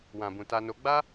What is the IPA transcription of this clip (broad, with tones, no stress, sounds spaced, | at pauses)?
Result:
w ã˨ b ũ˨ t a˧ n o˧ ɡ͡b a˦